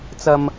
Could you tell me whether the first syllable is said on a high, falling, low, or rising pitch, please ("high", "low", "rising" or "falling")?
high